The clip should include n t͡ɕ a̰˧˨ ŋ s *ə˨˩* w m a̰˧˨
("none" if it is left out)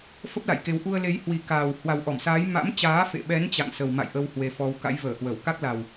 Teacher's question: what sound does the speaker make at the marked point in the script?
ə˨˩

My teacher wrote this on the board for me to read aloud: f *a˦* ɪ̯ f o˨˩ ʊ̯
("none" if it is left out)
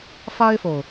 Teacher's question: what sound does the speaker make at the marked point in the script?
a˦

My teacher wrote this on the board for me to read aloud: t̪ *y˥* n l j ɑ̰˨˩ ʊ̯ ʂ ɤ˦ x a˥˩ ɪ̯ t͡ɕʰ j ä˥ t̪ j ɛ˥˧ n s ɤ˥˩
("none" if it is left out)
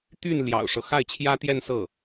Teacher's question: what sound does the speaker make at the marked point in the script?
y˥˩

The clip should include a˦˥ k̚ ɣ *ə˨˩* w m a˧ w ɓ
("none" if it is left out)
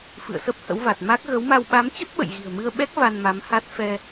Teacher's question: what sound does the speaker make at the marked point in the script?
ə˨˦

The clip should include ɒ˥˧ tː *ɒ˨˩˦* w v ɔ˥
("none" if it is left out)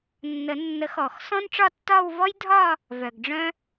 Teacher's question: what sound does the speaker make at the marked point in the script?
ɒ˥˧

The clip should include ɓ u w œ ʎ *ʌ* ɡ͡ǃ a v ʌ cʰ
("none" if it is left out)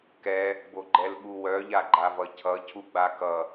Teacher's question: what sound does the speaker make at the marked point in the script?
a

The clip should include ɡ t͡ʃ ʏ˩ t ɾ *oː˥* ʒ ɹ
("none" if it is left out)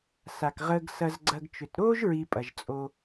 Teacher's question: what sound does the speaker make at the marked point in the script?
oː˥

